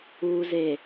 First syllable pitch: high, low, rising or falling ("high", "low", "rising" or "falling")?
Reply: low